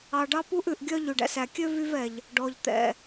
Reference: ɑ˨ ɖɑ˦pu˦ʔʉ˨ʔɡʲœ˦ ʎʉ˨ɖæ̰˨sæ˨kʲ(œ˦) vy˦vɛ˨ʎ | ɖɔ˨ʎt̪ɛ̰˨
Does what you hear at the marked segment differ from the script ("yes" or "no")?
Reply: yes